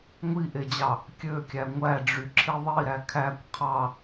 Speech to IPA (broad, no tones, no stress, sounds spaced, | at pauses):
ŋʷ i ʔ e d͡ʑ ɑ | kʲ ø kʲ æ ŋʷ æ ɖ͡ʐ y ǁʰ i ðˤ i ɾ æ kʰ æ kʷ qʰ ɑ